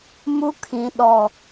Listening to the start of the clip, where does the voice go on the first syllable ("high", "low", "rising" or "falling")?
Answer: high